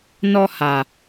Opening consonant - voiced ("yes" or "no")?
yes